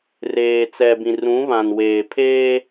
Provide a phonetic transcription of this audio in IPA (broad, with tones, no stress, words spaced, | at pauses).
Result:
reː˨t͡sɛ˨bĩ˨r ũ˨˦βã˨nweː˨pʰeː˦